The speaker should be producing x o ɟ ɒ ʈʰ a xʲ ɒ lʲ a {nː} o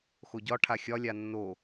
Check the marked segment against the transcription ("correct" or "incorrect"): correct